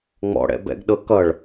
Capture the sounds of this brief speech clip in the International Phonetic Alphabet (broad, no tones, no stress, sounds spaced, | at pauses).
ŋ͡m ɔ̰ ɽ ɛ̰ b ɛ̰ ɡ ɗ ɤ k ʌ ɭ